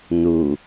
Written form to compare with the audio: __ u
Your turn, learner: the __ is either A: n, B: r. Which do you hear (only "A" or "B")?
A